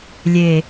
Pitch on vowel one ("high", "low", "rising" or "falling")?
low